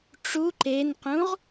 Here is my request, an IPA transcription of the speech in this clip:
ʈ͡ʂ u ǃ e n q ũ ʁ

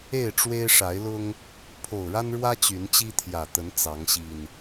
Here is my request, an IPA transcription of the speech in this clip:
e˥˨ ɪ̯ ʈ͡ʂ w e˦ ɪ̯ ʂ a˨˦ ɪ̯ l ʊ˦ ŋ | pʰ o˨˩ ʊ̯ ɻ a˦ n ɻ w ä˦ t͡ɕ y˨˦ n t͡ɕ i˦ t̪ʰ j ä˨˩ t̪ ə˨˦ n t͡s ɑ˨˦ ŋ ɕ i˨˩ n

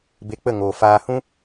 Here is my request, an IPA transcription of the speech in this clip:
b e˧ k͡p ə˦˨ ŋ oː˨ f aː˧ h ũ˦

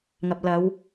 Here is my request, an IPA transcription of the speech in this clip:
ŋ ɐ˨ p̚ l ɐ˨˧ w

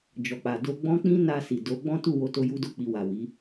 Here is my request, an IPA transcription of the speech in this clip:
d͡ʒ ɔ˨ k͡p a˨ d o˧ ɡ͡b ɔ̃˦ k͡p ĩ˦ n a˧ s i˨ d o˨˦ ɡ͡b ɔ̃˦ t u˦˨ w o˨˦ t o˧ j u˦ d o˦˨ k͡p i˧ w a˨ w i˨˦

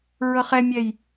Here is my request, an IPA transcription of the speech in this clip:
ɹ ɤ χ ɛ mʲ ɛ j

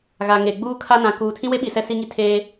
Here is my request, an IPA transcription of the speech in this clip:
ɣ a˨ ŋ e˨ ɡ͡b uː˦ kʰ a˦ n ã˨ k uː˨ tʰ ĩ˦ w e˦ ɓ i˨ s ɛ˦ s i˦ ŋ i˦ tʰ eː˦

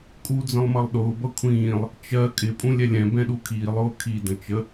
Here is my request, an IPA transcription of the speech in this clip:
kʼ u d͡z ə̃ lˠ m ʌ lˠ ɗ ʊː b ʌ kʷʰ ĩː lˠ | t͡ʃ ɜ kʼ ɪ pʼ ũ lʲ ɛ lʲ ɛ̃ b ɛ̃ ɗ u kʰ iː lˠ ʊː kʰ i d ə̃ t͡ʃ ə

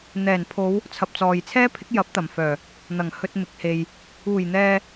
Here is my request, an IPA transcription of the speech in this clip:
n̪ ɛː˨˩ n pʰ o˨˧ w | t͡sʰ ɐ˨ p̚ t͡s ɔː˨ j t͡sʰ ɛː˥ pʰ ɪ˨˥ k̚ j ɐ˨˥ p̚ t̪ ɐ˨˩ m f œː˨˩ | n̪ ɐ˨˩ ŋ h ɵ˧ t̚ m ɪ˨˥ k̚ h e˨ j | uː˨˩ j n̪ ɛː˨

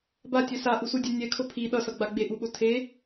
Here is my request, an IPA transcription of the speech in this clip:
b a tʲ ɛ s a ʔ u s u dʲ ɛ nʲ ɛ kʰ o pʰ i ɗ ʌ s ʌ ɡ͡b a ɡ͡b e ʔ u ɓ o tʰ e

